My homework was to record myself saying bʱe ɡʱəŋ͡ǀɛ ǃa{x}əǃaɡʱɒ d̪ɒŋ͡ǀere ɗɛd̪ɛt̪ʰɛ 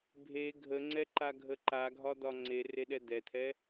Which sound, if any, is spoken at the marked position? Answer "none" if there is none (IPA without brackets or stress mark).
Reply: ɡʱ